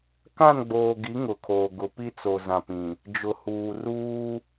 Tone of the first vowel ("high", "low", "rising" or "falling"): falling